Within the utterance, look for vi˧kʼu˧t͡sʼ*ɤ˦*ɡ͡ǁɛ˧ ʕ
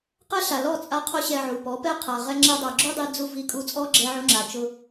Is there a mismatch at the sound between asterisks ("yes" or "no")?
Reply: yes